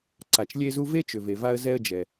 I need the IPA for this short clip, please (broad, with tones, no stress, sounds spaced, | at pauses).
ǀ a˩ t͡ʃ lʲ e˧ z u˧ v e˥ t͡ʃ ʏ˩ v e˩ v a˧ ə̯ z ɛ˧ ə̯ d͡ʒ ɛ˩